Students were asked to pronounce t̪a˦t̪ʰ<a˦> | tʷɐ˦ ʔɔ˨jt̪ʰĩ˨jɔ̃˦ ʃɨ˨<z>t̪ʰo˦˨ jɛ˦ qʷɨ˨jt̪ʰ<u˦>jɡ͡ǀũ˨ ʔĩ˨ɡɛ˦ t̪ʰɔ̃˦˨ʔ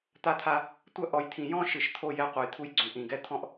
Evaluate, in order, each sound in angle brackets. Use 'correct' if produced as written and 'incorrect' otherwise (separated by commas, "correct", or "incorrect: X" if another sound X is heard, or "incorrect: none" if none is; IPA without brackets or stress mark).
correct, incorrect: ʃ, correct